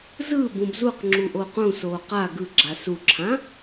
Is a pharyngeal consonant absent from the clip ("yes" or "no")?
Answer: yes